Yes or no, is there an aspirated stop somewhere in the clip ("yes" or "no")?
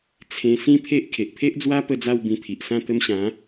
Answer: yes